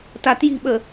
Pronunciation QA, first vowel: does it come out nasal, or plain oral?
oral